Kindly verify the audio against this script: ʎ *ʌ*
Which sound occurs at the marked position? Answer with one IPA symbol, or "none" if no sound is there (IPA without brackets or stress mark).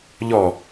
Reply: ɔ